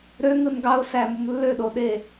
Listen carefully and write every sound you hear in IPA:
ɾ ø ŋ ɯ n ɡ ɑ ʊ̯ s æ m u m lː ø ɗ o ɗ e

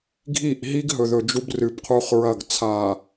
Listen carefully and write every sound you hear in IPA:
ɡʱ i˦˨ ʔ ɦ i˦ ɡ ɦ ɵ˨ ð ɵ˨ d͡ʒ u˦ b r ɨ˨ b qʰ u˦ χ ɹ ɐ˦˨ ɡ t͡sʰ a˨

